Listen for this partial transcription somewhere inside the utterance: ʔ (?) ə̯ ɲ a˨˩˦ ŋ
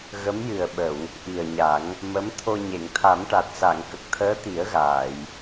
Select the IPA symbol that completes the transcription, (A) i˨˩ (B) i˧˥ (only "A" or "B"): A